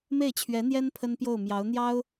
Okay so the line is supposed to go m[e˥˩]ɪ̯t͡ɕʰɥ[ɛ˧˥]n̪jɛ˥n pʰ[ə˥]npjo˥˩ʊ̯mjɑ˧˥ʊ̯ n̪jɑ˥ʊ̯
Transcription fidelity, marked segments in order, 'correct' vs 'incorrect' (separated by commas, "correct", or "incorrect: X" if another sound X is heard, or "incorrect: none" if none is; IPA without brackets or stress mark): correct, correct, correct